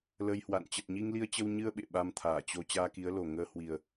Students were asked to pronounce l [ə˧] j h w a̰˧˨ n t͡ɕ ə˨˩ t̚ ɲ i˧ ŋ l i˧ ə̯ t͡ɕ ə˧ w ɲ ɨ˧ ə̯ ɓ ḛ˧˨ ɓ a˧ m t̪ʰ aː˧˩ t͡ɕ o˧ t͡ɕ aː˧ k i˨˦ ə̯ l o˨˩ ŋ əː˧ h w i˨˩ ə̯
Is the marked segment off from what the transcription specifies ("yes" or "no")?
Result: no